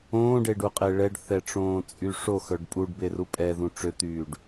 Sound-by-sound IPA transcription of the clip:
õː ɖ e ɖ u qʼ e ɭ ɛ ɖ θ ɛ ʈ͡ʂ õː t͡sʼ y ʂ o x œ ɖ pʼ u ɖ b e r u pʼ ɛ ð ũ ʈ͡ʂ ø t̪ yː ɖ

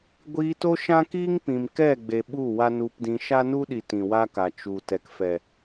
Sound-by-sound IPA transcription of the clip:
ɡʷ iː˧ t o˦ ʃ ã˦ k iː˦ ŋ p ĩ˨ m k ɛ˦˨ ɡ͡b e˨ ɓ u˦˨ w a˦ n u˧ p d ĩ˧ ʃ a˦ n u˦ ɗ i˨ t ĩ˨ w a˦ k a˨ t͡ʃ u˨ t ɛ˨ k f ɛ˨

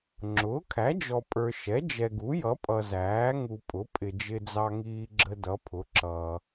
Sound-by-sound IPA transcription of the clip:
ŋ͡ǁ ʊː˩˥ kʰ æ˩˥ d͡ʒ ɔ˨ pʼ ə˞˨ ʃ ɛ˩˥ d͡ʒ ɛ˨ ɡ u˩˥ j ʌ˩˥ pʼ ʌ˨ z æː˩˥ ŋ u˨ pʼ ʊ˩˥ pʼ ɪ˨ d͡ʒ ɪ˨ d͡z ɑ˨ ŋ iː˨ ɡ͡ǁ ə˨ d ʌ˩˥ pʰ ʊ˩˥ ǁ ʌː˨

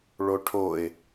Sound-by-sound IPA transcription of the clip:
ɭ o ʈʰ o ɪ̯

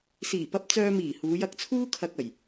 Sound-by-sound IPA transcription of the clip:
s iː˨˩ p ɐ˧ p̚ t͡s œː˧ m iː˨˩ h uː˨˧ j ɐ˧ k̚ t͡sʰ uː˥ kʰ ɐ˧ k̚ ɐ˨˩ j

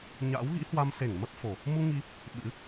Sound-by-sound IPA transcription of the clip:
ɲ a̰˧˥ w ɣ ḭ˧˥ h w a˧ m s e˧˩ ŋ m ə˦˥ p̚ f o˨˩ | m u˧ ŋ i˧ | ɓ ɨ̰˧˥

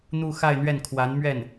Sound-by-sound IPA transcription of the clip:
n̪ u˥˧ x a˥˧ ɪ̯ n̪ ɥ ɛ˥˩ n kʰ w a˧˥ n m ɥ ɛ˥˩ n

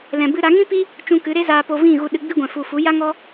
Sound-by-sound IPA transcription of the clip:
l ɛ̃˨ b ɨ˧ ɾ a˨˦ ŋ ĩ˦ p i˦ | t͡ʃ ũ˧ k ɨ˨˦ ɾ e˦ z aː˧ p o˧ v ĩ˦˨ ɣ u˧ ɗ ɨ˧ ɡ͡b i˦ ɡʷ ɛ̃˨ f u˨ f u˨˦ j a˦ ŋ ɔ˦

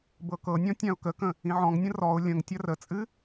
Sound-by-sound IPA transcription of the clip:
b ɤ k ɤ nʲ ɔ̃ tʲ ã ʊ̯ k ə k ə̃ | ĩ ʕ ɔ̃ ŋ nʲ ə̃ r ɔ ʊ̯ lʲ ə̃ ŋ tʲ ɐ r ə t͡sʼ ɨ

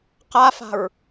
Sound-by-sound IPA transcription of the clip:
q a f a̤ ɹ

